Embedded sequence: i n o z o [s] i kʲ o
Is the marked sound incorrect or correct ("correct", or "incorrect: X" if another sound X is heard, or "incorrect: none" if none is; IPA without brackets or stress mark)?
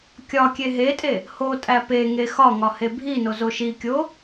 incorrect: ʃ